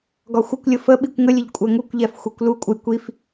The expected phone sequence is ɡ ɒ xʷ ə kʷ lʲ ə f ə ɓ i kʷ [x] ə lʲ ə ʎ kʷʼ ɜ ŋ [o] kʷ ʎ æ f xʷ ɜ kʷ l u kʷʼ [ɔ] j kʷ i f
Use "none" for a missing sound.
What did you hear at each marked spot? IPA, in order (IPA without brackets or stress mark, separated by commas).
ŋ, u, ə